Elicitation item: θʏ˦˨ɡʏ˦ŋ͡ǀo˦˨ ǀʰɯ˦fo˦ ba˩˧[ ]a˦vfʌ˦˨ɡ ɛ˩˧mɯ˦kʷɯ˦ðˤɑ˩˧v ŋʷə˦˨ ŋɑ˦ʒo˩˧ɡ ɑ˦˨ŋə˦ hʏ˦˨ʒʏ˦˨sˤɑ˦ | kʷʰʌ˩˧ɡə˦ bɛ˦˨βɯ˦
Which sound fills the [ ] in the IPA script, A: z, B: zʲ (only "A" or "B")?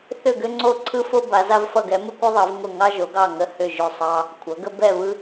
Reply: A